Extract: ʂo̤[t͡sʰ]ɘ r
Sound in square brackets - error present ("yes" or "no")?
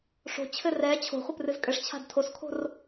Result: yes